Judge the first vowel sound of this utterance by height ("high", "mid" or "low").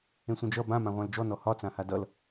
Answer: mid